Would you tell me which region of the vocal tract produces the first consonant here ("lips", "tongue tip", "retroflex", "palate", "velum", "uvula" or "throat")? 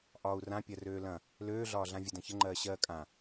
throat